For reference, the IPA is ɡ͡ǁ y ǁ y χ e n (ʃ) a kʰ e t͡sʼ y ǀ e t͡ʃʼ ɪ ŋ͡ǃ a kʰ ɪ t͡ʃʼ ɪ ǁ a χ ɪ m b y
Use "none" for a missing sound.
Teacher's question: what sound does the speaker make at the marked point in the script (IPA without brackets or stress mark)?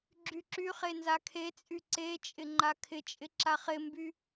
z